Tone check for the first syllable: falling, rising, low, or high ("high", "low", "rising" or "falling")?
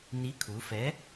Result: rising